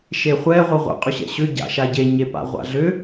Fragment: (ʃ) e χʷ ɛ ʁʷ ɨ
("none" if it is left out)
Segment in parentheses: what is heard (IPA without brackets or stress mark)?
ʃ